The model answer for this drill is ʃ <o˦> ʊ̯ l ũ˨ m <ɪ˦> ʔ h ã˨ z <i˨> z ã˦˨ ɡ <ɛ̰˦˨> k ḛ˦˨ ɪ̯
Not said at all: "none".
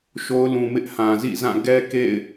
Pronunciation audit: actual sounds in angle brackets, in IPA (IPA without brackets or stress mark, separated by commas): o˦, ɪ˦, ḭ˦˨, ɛ˦